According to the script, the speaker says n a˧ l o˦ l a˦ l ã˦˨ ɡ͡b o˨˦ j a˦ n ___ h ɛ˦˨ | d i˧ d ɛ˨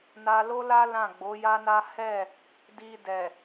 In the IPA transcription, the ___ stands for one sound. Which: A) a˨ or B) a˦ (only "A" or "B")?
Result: B